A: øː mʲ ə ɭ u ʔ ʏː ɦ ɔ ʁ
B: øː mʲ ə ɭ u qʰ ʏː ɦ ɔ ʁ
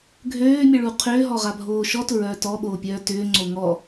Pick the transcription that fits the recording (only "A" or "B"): B